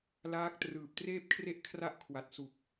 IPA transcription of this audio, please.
laː˦˥k̚ trɯː˨˩p̚treː˥˩p̚kʰre˥˩ʔ kʰra˥˩ʔkʰwa˨˩t̚ su˨˩k̚

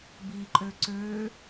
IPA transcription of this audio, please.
biǃʼø ǀø

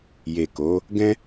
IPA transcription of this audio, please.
je˨ko˨˦ | ɡɛ̃˦

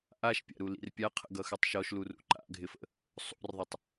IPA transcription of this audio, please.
ʔaʃpʲa̰ɾulḭr pʲaqʰə̰ɡʌxʉtˤ ʃɔʃlurṵ ǃa̰ɡʱɪfə̰ | sˤṵrðˤɘtˤ

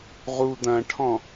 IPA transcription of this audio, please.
ʁu d̪ɐ̃ʈʰɔ̃

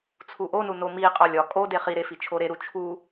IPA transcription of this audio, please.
t͡sʰuʔonu nomiqʼɒ lʲɒ kʼode χiɾe fit͡ʃʰoɾeɾu t͡ʃʰu

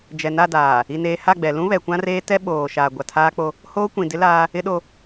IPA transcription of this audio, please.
d͡ʒɛ˨na˦˨ daː˨ | i˨neː˨ ha˦˨ɡ͡bɛ˨ lũ˦ βɛ˨kʷã˦reː˦ tɛ˦ ɓoː˨ ʃaː˨ɡʷa˨tʰaː˦k͡po˦ | hoː˦kʷĩ˨dɪ˦laː˦ | ɪ˦ɗo˦

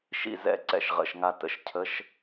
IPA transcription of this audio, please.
ʃḭ˧˩ zɛ̰˥˩ ǀɛ̰˧˩ʃʁə̰˩˧˩ʃŋa˧˩ tə̰˨˥ʃ cʰə˧˥˧ʃ

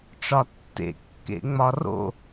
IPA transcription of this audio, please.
ʈ͡ʂɒtːḛkːḛŋ͡mɒ ro̰

